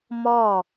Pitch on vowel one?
falling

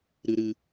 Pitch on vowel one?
low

